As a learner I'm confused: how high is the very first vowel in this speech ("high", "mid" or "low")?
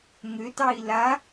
mid